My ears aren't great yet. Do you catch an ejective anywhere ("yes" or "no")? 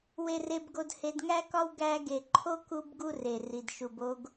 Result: no